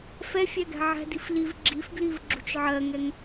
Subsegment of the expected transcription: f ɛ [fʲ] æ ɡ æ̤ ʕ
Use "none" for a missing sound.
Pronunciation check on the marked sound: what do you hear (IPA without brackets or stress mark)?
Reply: fʲ